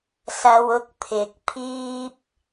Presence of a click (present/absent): absent